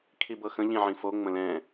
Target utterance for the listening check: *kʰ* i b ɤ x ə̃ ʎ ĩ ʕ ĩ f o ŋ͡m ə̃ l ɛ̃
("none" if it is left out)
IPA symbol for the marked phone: kʰ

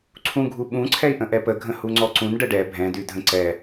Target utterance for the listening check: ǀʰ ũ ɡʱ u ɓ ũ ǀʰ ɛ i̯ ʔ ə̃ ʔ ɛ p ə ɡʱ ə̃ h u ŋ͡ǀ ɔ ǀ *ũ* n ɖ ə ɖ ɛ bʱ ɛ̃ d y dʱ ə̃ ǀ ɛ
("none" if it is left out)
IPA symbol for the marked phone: ũ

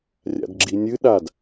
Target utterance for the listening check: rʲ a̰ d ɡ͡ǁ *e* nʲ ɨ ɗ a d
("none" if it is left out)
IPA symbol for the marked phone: i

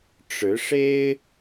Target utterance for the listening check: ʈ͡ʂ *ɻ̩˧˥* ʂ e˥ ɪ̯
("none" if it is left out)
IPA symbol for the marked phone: ɻ̩˧˥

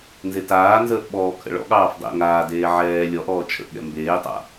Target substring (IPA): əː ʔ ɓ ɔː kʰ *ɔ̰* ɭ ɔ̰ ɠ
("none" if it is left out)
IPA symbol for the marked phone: ə̰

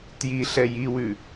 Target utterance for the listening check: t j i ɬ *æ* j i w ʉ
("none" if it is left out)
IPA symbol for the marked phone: ɛ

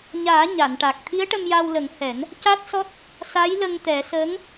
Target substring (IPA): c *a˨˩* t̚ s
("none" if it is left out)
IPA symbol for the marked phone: a˦˥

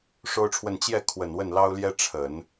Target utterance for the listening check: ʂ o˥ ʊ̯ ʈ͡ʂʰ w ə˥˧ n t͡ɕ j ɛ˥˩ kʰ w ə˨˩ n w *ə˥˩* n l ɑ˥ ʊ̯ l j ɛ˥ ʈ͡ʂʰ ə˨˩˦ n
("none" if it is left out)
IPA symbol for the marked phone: ə˥˩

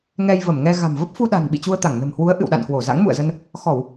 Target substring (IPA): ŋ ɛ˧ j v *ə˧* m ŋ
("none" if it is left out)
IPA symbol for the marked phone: ə˧˩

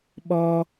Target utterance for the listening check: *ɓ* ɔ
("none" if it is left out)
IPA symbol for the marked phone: ɓ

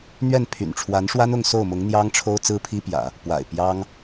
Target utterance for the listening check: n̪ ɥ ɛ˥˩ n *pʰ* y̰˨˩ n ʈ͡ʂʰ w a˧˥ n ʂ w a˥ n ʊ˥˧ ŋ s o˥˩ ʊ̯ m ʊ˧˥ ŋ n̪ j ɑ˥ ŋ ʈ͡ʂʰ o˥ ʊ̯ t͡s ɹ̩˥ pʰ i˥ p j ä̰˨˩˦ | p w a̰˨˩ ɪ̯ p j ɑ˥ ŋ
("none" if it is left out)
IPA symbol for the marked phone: pʰ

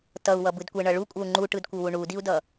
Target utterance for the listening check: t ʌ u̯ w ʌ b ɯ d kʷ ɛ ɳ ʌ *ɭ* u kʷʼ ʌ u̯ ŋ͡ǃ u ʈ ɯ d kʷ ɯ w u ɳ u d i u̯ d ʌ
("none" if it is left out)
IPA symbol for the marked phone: ɭ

